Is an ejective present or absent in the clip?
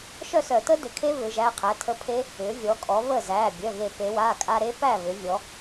present